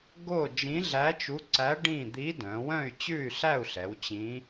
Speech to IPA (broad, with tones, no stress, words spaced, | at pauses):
ɡo˥˨ d͡ʒĩ˧˥ɮæ˧˥t͡ʃu˧˥ǀæ˧˥ ɖĩ˥˨ d̪i˧˥dœ̃˩˧wœ̃˥˨y̯ t͡ɕʉ˥˨y̯ɬæ˥˨u̯ɬɛ˩˧w t͡ɕĩ˧˥